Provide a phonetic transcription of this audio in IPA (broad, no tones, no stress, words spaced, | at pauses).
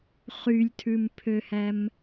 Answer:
χylʲtʰʉmpʰøhæm